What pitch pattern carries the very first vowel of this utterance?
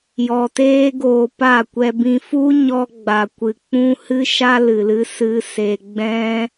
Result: low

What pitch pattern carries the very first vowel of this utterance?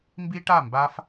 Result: high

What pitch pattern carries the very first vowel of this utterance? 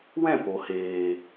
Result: falling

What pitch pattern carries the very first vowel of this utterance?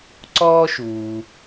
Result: high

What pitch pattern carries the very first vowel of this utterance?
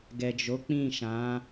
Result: low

